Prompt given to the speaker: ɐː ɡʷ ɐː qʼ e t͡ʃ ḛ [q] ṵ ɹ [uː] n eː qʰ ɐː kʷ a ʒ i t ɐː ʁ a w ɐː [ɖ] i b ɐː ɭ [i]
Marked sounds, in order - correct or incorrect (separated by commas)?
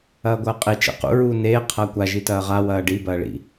correct, correct, correct, incorrect